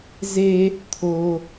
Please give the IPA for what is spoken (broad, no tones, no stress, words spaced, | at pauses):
ze | t̪ʰo